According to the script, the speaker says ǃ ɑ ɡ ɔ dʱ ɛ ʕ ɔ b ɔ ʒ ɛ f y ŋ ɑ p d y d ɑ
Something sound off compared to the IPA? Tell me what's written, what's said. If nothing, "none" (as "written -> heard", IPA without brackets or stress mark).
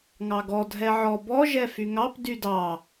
ǃ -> ŋ